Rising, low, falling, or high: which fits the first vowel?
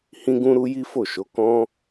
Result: high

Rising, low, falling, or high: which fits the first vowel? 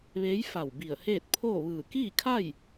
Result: rising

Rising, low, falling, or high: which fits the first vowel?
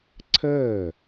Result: falling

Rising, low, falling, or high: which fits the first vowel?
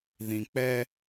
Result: low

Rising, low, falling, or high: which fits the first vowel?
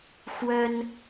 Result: high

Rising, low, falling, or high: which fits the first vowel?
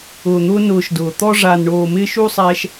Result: low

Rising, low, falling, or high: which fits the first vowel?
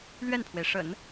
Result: falling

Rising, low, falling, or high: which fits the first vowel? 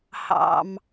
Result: low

